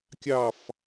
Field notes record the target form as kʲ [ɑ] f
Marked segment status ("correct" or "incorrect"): correct